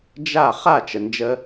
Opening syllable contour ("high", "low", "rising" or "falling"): falling